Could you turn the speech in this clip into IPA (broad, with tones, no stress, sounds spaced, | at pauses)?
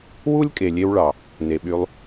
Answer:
w u˦ lʲ kʼ e˨ lʲ e˧ w ɭ ɑ˨ | n e˨ ɓ y˧ lˠ